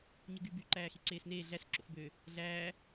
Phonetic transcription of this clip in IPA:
ɲ ɯ ɡ y b y ǃ æː x i ǀ eː s n eː ɮ æ s ǁ o̰ x b ø | ɮ æː

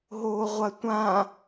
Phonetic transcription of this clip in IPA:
ɦ oː ʁʷ ɐ tʷ ã

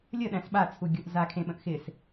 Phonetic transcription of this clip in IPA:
lʲ ə ɗ æ̃ s ɓ a t͡sʰ u ɡʲ o ʔ z a kʰ ẽ ɓ ə̃ ʔ x ɪ s

